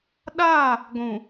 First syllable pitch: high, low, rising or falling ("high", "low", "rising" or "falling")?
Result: falling